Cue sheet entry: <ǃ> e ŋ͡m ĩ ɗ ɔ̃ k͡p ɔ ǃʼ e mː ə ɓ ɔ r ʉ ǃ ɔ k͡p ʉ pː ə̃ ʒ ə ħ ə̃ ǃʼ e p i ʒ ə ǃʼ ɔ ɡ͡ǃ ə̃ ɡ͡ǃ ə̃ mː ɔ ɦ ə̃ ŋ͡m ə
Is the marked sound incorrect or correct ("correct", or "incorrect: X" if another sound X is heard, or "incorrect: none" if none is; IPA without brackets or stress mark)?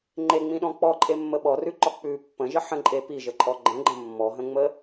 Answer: incorrect: ŋ͡ǃ